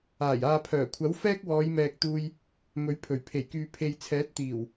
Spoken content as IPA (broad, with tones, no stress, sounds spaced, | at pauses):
aː˨˩ j aː˨ pʰ œː˨˩ kʷʰ ɐ˨˥ w f ɛː˥ k̚ w ɔː˨˧ j m ɛː˨ k̚ t̪ uː˧ j | m ɵ˨˥ ɥ pʰ ɵ˨˩ ɥ pʰ e˨˩ j k yː˨ pʰ e˧ j t͡sʰ ɛː˨˥ t̚ t̪ iː˨˩ w